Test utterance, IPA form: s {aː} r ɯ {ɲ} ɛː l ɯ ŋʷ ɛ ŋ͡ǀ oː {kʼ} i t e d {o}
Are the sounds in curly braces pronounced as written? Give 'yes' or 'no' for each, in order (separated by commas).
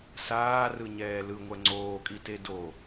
yes, yes, yes, yes